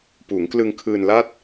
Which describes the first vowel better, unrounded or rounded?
rounded